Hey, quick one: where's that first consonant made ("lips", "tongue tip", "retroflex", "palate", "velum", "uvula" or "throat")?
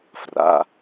lips